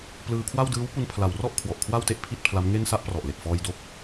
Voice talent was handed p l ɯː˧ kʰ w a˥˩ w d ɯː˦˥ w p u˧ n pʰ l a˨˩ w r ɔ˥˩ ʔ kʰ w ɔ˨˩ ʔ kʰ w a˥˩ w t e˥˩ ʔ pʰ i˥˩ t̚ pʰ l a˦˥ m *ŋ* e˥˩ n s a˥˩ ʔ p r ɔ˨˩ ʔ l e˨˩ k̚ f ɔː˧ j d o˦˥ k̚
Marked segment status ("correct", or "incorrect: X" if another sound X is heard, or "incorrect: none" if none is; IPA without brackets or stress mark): correct